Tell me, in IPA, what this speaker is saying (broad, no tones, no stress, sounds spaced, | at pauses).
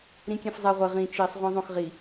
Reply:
ɾ ĩ kʲ ɛ̃ f zˤ ɛ ʁʷ ɘ ʁ ĩ t͡ʃ i sˤ ʁʷ ɛ̃ zˤ õ x ʁ i